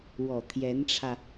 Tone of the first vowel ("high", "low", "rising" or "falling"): low